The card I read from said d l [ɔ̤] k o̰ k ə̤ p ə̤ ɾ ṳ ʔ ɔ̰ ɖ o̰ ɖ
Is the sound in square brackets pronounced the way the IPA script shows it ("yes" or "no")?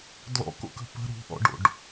no